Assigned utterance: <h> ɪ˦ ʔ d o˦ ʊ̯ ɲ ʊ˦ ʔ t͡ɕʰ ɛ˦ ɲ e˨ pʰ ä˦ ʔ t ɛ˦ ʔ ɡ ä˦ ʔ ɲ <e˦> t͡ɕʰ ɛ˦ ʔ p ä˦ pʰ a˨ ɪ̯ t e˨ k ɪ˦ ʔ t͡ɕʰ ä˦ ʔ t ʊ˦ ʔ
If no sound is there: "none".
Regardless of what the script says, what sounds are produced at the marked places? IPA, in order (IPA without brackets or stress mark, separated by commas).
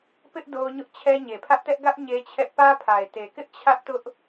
p, e˦